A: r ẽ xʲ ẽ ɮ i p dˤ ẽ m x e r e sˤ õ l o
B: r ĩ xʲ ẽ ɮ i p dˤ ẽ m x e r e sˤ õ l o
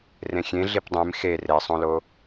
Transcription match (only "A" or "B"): A